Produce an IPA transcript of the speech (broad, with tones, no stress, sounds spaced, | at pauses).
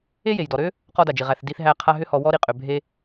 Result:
e˥ j e˩ j d ɔ˩ ɾ ø˥ | q ɔ˧ d a˩ d͡ʒ i˩ ʁ æ˩ θ d i˧ θ ɦ æ˧ qʰ a˧ ɦ ʏ˧ h ɔ˩ w ɔ˧ ɾ i˩ qʼ ø˩ bʱ e˧